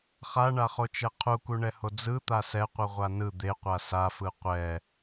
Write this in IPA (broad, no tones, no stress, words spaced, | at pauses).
χaɳaχot͡ʃɛ qʰukuɳɛho d͡zɯt̪a sɛqʷɯʁʷa nɯ d̪eqʷa safɯ qʷɛ